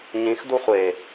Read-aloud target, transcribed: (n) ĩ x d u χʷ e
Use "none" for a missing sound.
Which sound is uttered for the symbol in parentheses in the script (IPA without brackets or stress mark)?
ɲ